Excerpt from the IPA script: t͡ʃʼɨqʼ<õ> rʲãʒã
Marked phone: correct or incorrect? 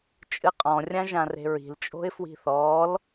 incorrect: ɔ̃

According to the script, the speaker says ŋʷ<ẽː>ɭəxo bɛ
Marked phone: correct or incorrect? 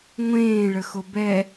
correct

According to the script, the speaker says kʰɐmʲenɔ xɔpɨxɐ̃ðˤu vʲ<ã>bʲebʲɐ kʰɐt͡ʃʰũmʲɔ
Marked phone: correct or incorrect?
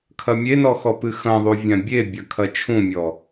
correct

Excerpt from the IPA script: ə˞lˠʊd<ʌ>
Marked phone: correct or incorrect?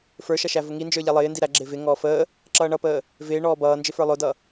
correct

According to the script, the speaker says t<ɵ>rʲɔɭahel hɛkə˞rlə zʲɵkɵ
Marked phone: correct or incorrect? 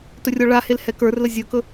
correct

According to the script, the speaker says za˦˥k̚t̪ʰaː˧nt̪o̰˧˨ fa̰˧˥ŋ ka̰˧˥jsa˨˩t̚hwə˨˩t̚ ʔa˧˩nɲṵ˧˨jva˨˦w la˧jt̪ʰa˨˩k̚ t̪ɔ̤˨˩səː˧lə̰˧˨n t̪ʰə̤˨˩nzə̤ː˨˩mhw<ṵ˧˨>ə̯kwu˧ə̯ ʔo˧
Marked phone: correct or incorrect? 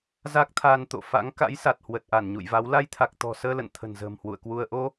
correct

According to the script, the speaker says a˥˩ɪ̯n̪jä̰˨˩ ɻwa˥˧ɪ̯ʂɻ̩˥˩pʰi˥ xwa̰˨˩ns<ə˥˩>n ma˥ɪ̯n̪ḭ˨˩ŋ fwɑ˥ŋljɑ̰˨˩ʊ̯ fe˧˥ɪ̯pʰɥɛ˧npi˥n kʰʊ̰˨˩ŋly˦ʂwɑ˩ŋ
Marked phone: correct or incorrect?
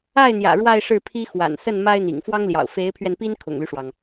correct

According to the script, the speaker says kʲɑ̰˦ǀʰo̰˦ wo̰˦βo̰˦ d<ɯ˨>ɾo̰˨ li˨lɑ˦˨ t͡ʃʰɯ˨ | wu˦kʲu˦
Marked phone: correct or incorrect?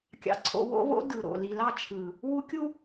correct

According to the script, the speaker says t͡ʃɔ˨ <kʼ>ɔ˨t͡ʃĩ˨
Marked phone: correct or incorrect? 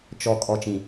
correct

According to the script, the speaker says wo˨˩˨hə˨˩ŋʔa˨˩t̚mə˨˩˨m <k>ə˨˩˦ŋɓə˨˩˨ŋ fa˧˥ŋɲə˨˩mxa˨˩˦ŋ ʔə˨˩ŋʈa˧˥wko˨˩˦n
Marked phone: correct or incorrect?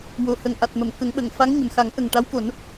correct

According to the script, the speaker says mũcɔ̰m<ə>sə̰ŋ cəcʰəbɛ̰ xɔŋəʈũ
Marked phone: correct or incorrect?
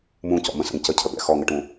incorrect: ə̃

